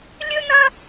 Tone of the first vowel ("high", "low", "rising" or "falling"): high